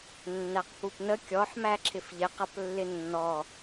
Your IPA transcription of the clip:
nː æ q p u p n ə kʲ ɔ ħ m æ ǁʰ ɪ f ʎ ɪ q ʌ p lː ɪ nː ɔ

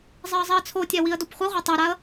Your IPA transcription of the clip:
zˤ i ə̯ zˤ i ə̯ t͡sʰ o tʲ ɛ w i ə̯ d o p χʷ i ʁʷ ɛ tˤ ɛ ɾ a ə̯

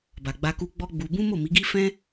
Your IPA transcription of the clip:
b a˨ ɡ͡b a˧ k u˧ ɡ͡b ɔ˦ ɡ͡b u˧ b ũ˦ m o˦˨ m i˨˦ ɡ i˦ f ɛ̃˦

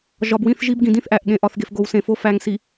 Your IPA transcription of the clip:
ʒ ɒ˨ b w ĩ˦˨ θ ʒ i˦ b ɡ ĩ˨ d ĩ˦ θ ʔ æ˨ ʔ ɠ ẽ˨ ʔ ɒ˨ θ ɡ e˨ f ɡ o˨ w s ẽ˨ f o˦ f æ˨ ŋ s i˨

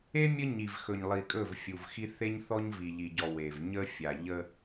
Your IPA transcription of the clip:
e˦ mʲ ə˦ ɲ i˨ v x ɵ˨ ɲ lˠ i˨ kʼ ɵ˦˨ v fʲ u˨ v x i˦ θ e˦ ɲ θ ɔ˦ ɲ v i˨ ʎ i˨ ɟ ɔ˨ w e˨ v ɲ ə˦ fʲ a˨ ʎ ə˦

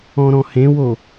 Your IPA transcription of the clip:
ɔ̃ ɾ ɔ̃ h ẽ w o

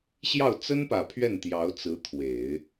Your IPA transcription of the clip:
ɕ j ɑ˥˩ ʊ̯ t͡s ə˥ n p ä˨˩ pʰ ɥ ɛ˥˩ n t̪ j ɑ˧˥ ʊ̯ t͡s ɹ̩˧˥ t̪ʰ w e˨˩˦ ɪ̯

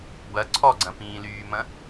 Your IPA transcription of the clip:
b ɐ ǀʰ ɔ ɡ͡ǀ ɐ̃ p ĩː l yː m ɐ̃

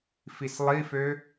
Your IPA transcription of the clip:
f i s lˠ i f ø

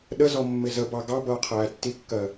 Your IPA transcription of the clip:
ɗ ə z ɔ mː ɪ z ə b ɑ ɡ ɑ b ʌː qʰ æː tː i kː ɜ

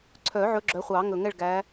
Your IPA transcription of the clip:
ǀʰ œ˨˩˦ ʕ ɵ˨˦ ɡ͡ǁ œ˨˦ χʷ ɑ˨˩˦ ŋ ɵ˨˩ ŋ ɛ˥˨ ɭ ɡ æ˨˦

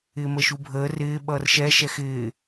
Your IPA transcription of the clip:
ɪː m ə ʃ u bʱ əː r ɪː ɓ ʌː r ʃ ɛ ʃ ɛ x ɪː

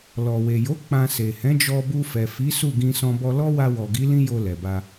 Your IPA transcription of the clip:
l ɔ˨ w e˨ j o˨˦ k͡p ã˧ s e˨ h ɛ̃˨˦ d͡ʒ ɔ˧ b u˧ f ɛ˨ f i˨˦ s u˦˨ ɡ ĩ˧ s ɔ̃˧ b ɔ˧ l ɔ˦ w a˧ w ɔ˨ ɡ i˨˦ l ĩ˦ j o˧ l ɛ˨ b a˧

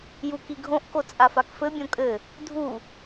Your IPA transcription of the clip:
j u k i ɡʱ õ ʔ k o t͡sʼ a f a k f ɘ bʲ õ kʼ ɘ | dʱ u

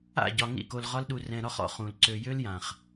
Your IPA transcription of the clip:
a̰˦˨ ɟ ɒ˨ ŋ ḭ˦˨ k o˧ l ʁ ɒ˦ l ɗ u˧ r ɛ̃˧ ɾ ɒ˦ χ ɔ̰˦ χ ũ˨ l ǀ ø˧ j ø˦ l j ã˨ χ

